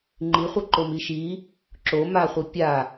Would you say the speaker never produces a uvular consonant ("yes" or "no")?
no